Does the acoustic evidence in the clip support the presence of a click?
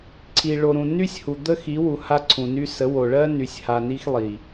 yes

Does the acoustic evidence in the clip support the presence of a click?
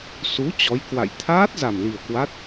no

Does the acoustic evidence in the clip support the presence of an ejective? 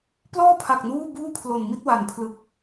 no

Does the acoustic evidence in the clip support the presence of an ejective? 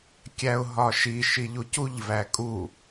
yes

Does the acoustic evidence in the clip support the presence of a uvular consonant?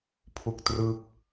no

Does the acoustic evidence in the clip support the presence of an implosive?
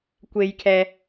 no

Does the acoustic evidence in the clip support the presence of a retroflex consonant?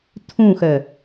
no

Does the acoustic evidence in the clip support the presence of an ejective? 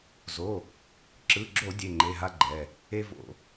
no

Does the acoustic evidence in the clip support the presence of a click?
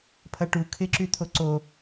yes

